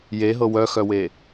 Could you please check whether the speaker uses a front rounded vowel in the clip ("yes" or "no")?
yes